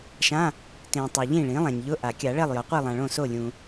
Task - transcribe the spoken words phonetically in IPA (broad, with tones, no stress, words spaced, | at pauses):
ʃã˧˥˧ | tẽ˨ tˤɛ˨ʎĩ˥˨ɭĩ˩˥ lˠã˨ɲʎʊ˧˥˧ʔa˨˩˦ kʲa˨˩˦ɭɛ˥˨lˠ jɔ˩˥qʷi˥˨lˠã˨ɭõ˥˨ so˥˨lʲũ˨